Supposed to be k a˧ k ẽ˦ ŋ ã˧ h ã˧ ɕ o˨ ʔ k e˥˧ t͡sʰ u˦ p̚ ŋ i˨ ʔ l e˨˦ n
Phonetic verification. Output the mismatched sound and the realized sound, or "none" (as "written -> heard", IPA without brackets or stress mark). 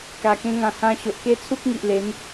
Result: none